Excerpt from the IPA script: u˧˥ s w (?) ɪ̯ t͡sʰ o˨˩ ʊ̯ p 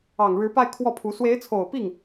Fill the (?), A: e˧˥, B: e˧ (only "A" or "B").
A